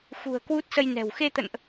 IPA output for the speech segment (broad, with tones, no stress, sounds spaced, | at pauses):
x ṳ˨˩ ə̯ k w u˦˥ t̚ s ə˧ j n ɛ̤˨˩ w x e˧ t̪ ə̰˧˨ n ʔ